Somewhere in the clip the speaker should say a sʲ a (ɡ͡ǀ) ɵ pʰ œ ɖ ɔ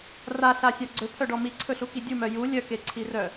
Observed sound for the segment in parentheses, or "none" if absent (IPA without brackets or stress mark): ɡ͡ǀ